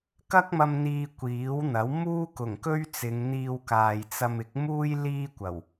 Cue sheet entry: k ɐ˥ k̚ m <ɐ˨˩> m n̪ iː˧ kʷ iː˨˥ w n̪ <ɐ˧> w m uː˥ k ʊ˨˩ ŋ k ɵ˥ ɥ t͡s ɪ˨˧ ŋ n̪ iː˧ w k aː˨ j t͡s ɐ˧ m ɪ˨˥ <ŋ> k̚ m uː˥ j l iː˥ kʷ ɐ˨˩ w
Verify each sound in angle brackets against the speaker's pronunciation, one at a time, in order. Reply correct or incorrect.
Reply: incorrect: ɐ˧, incorrect: ɐ˨˥, incorrect: none

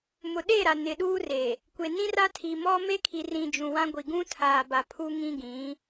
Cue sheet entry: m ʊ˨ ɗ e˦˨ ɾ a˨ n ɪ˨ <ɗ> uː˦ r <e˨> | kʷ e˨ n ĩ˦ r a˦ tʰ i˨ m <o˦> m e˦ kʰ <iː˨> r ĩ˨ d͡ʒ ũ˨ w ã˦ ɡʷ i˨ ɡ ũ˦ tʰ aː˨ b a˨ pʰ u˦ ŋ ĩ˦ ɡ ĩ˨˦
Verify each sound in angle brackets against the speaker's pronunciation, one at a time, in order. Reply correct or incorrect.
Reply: correct, correct, incorrect: ɔ˦, incorrect: i˨

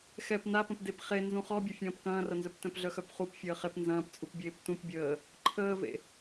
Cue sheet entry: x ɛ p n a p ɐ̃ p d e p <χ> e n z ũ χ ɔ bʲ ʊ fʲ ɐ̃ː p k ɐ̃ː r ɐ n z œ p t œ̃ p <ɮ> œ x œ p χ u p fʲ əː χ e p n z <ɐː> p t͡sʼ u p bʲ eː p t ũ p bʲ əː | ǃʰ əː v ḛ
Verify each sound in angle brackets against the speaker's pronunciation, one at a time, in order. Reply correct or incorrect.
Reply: correct, correct, incorrect: ɐ̃ː

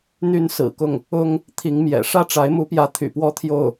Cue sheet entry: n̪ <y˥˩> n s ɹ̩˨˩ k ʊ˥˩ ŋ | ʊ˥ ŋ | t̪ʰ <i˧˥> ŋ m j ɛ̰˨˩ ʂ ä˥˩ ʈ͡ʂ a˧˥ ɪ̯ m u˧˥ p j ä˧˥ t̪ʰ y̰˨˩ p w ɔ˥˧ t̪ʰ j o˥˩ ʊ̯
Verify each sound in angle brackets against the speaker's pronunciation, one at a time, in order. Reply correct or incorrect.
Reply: incorrect: y˥, correct

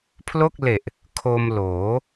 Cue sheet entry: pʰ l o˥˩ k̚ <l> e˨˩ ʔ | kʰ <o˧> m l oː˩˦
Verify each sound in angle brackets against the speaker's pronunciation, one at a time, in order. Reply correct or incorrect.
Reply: correct, correct

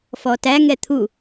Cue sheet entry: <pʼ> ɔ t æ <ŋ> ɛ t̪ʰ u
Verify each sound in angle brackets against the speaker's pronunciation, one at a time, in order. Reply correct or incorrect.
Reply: incorrect: f, correct

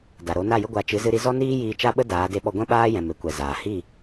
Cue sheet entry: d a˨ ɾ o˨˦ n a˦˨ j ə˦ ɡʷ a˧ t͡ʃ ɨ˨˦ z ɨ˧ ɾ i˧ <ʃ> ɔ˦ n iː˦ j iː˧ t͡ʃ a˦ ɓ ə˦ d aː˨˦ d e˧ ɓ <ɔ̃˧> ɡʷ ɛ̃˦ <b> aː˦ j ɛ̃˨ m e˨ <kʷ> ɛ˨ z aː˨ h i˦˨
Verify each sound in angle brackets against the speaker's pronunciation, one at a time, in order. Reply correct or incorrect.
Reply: incorrect: z, incorrect: ɔ˧, incorrect: ɓ, correct

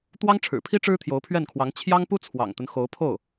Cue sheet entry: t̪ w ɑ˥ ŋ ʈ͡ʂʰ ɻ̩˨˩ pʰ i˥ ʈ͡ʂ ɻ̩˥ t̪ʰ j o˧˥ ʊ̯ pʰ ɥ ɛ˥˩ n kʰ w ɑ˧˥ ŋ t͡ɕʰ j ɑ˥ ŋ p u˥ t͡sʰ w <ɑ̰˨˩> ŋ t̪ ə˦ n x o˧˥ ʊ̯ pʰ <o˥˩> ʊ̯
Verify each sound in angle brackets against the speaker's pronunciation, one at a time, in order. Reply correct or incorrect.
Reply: correct, correct

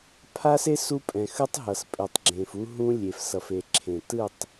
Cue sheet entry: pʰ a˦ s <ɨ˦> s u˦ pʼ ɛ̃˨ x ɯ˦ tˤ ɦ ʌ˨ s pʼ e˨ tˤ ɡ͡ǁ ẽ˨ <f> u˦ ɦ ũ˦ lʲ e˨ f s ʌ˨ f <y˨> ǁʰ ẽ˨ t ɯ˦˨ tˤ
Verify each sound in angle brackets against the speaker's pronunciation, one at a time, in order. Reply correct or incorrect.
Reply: incorrect: e˦, correct, incorrect: e˨

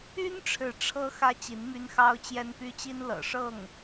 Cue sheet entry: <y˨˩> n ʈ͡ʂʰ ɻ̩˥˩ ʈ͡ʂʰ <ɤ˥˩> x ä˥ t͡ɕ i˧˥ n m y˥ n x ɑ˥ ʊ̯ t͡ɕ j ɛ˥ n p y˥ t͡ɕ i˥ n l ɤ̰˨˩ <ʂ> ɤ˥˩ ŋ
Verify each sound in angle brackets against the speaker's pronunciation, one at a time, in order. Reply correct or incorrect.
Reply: incorrect: y˥, incorrect: ɤ˥, correct

